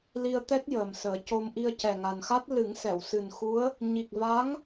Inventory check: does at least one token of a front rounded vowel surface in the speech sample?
no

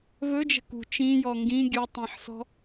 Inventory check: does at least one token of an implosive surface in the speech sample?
no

